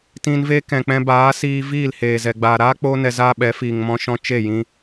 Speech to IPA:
t ĩ˧ n v e˦ k ɛ̃˨ k͡p ɛ̃˧ b aː˨˦ s iː˧ v iː˦˨ l h eː˨ z ɛ˨ ɡ͡b aː˨ ɾ aː˦ k͡p oː˧ n ɛ˧ z aː˦ ɓ ɛ˨˦ f iː˨ ŋ m ɔ̃˧ ʃ ɔ̃˧ t͡ʃ e˦˨ j ĩ˧

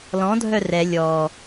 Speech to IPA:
l ɔ̃ dʱ œ r ɛ lʲ ɔ

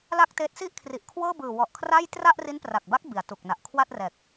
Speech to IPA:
l a˥˩ k̚ t eː˦˥ t̚ s i˥˩ ʔ kʰ r i˨˩ ʔ kʰ w ɤː˥˩ b ɯː˨˩ w ɔ˨˩ ʔ kʰ r a˥˩ j t r a˥˩ ʔ r i˦˥ n p r a˨˩ k̚ b a˦˥ k̚ b i˩˦ a̯ t u˨˩ k̚ n a˨˩ ʔ kʰ w a˥˩ t̚ r ɛː˨˩ k̚

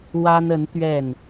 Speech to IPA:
w a˥ n ə˧˥ n t̪ ɥ ɛ˥˩ n

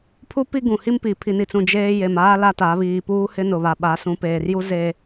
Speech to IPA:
pʰ u˦ p i˦ ɡ ũ˨ h i˦ m p i˨ pʰ i˨ n i˨ t͡s ũ˨ d͡ʒ eː˦ j e˨ m aː˦ l a˦ t a˨˦ β iː˨ p uː˦ h ɪ˦ n ʊ˨ β a˨ ɓ a˨˦ s ũ˨˦ p eː˨ r j u˦ z e˨

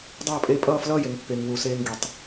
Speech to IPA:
dˤ ʌː˥˨ pʼ e˥˨ pʼ ʌː˥˨ f l ʌː˥˨ j e˨ ŋ pː e˨ ŋ w u˨ s eː˦ ŋ ɡ i˨ tˤ

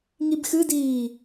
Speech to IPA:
ŋ i b x ɨ d iː

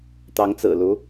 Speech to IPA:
t̪ ɑ˧˥ ŋ t͡s ɹ̩˨˩ l u˧˥

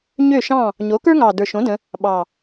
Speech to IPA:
ɲ ø˥˨ ʃ ɑ̃˥˨ | ɲ o˩˥ k ə˞˥ ŋ ɑ˨˩ d ə˞˨˩ ʃ õ˩˥ d ə̃˩˧ | ɓ ɑ˨˩

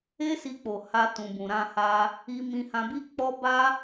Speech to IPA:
e˦ s i˧ k͡p o˨ h a˧ t ũ˨ b ũ˨ ɾ ã˧ h a˧ | i˧ m ĩ˧ h ã˧ b i˦ k͡p ɔ˦ b a˦

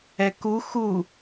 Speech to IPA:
ɛ k u x u

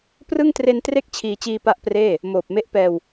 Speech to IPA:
p r ɯ˥˩ ŋ t r e˧ n t r e˥˩ k̚ t͡ɕʰ iː˧ t͡ɕ iː˧ p a˦˥ ʔ p r eː˥˩ | m oː˨˩ p̚ m e˦˥ ʔ p ɛː˧ w

